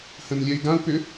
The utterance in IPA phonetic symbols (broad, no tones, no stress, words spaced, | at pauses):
hə̃nlʲɛi̯ɡãu̯pʏ